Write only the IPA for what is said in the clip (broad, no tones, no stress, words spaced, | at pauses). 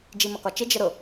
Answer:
d͡ʒimʌkɒt͡ʃɪ d͡ʒəɾʊ